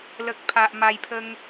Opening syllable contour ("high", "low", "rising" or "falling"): low